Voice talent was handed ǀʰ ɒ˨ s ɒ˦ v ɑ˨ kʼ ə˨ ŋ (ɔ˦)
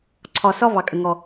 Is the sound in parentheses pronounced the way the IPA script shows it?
no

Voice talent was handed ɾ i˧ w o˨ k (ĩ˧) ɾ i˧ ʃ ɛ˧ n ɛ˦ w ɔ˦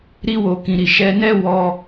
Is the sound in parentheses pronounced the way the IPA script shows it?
no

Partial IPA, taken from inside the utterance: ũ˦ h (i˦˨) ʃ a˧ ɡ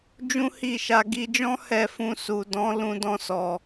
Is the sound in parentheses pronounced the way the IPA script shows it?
yes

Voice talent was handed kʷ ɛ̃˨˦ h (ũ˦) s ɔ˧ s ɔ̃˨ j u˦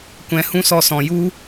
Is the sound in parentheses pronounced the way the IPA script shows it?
yes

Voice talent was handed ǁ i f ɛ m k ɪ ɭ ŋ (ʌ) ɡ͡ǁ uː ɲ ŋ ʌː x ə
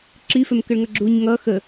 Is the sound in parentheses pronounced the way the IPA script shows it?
yes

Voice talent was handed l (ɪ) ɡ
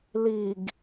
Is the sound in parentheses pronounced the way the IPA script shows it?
no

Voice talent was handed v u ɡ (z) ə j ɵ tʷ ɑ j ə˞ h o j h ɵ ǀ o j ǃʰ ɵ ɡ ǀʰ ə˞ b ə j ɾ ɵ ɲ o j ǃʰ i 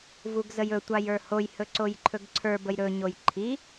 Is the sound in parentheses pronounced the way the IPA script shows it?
yes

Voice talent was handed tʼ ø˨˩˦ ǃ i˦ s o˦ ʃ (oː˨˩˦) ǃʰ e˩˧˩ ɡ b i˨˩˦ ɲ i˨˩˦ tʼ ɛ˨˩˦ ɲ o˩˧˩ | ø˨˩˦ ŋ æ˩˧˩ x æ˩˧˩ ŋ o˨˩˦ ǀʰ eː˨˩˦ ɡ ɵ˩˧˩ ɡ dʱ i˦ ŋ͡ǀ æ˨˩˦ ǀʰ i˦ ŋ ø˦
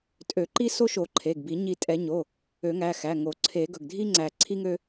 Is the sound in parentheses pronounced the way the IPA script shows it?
no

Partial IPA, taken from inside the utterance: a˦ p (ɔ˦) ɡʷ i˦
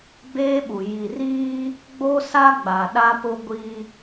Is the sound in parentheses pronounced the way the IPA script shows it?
no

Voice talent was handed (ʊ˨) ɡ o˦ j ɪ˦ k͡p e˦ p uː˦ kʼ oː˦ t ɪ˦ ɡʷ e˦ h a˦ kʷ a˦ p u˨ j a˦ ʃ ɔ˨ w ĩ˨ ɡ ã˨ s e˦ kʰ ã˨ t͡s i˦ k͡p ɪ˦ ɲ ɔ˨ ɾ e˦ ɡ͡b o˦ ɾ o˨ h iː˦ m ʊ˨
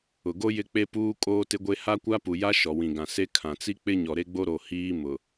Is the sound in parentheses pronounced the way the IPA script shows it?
yes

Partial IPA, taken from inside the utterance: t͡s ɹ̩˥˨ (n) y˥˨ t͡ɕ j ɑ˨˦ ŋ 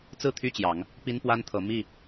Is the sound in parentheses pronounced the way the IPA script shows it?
no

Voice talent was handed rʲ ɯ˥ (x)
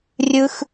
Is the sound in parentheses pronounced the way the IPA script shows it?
yes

